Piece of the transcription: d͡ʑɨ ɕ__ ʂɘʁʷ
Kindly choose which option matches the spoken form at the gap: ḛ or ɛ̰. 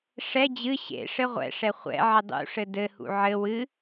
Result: ḛ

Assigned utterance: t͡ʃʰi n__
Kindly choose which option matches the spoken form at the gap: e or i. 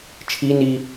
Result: i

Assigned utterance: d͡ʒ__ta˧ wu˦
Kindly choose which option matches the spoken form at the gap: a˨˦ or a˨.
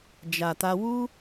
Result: a˨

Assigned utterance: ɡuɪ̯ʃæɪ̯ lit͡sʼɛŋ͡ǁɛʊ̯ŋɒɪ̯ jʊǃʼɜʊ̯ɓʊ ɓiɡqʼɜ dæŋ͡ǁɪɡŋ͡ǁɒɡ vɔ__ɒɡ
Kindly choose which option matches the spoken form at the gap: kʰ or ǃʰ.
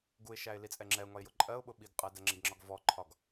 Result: ǃʰ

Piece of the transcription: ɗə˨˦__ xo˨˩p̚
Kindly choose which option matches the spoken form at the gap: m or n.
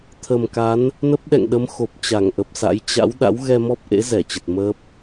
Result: m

